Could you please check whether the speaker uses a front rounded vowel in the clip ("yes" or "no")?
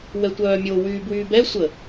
yes